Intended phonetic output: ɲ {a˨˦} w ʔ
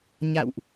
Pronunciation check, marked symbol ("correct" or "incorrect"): incorrect